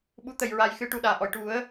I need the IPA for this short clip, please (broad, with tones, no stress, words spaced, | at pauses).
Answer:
ɓu˨˩˦t̪ə˨˩˨jɹa˨˩j xɨ˧ ʈu˨˩ɗaː˨˩˨ʔɔ˨˩˨j ʈu˨˩˦ə̯